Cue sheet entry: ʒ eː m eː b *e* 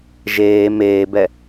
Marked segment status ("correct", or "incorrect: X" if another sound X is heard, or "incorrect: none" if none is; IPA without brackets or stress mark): incorrect: ɛ